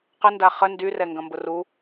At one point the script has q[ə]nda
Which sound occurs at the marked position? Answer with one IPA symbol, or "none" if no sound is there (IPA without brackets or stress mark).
ə